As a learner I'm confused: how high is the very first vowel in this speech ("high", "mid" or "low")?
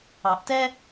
low